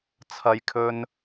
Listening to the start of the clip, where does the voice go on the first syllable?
high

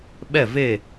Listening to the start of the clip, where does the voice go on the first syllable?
falling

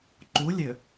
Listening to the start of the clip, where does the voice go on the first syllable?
rising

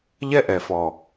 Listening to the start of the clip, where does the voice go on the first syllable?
high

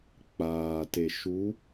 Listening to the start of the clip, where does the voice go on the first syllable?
low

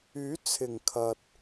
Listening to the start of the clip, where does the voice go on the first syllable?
rising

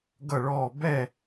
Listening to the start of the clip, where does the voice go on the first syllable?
falling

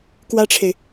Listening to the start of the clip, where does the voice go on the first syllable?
high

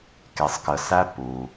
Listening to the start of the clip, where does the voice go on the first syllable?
low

